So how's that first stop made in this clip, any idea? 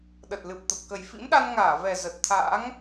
implosive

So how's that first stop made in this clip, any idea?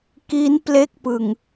plain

